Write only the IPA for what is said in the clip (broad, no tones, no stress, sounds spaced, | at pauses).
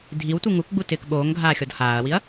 dʱ i w tʷ i ŋ u k ɡ͡b u t ɪː k ɓ oː ŋ ɡʱ aː xʲ ɔ d h aː ɐ̯ w i ɐ̯